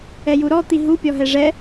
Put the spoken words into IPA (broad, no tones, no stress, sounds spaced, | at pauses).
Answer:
ɛ j u ɾ ɔ t̪ i ɦ u pʲ ɔ ɦ ɛ ʐ ɛ